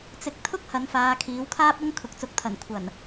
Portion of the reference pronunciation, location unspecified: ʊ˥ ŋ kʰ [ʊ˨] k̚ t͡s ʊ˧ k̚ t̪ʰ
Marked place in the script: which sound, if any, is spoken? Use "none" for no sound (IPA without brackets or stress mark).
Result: ʊ˨